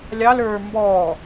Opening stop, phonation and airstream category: plain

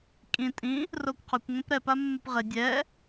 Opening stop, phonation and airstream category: ejective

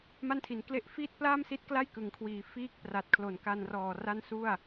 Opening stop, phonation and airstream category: aspirated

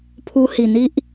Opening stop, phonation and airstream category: aspirated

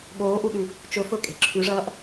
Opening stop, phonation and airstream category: implosive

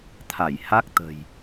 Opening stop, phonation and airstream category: aspirated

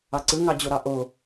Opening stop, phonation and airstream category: click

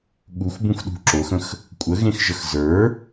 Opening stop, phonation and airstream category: implosive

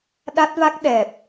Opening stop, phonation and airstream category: implosive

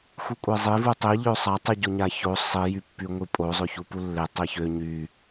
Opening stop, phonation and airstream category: ejective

